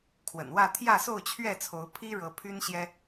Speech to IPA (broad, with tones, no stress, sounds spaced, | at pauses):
kʰ w ə̰˨˩ n w ä˥˨ t̪ʰ j ä˥˨ s o˥˨ ʊ̯ t͡ɕʰ ɥ ɛ˥˨ t͡sʰ o˨˦ ʊ̯ pʰ i˦ ɻ ɤ˨˦ pʰ y˦ n ɕ j ɛ˦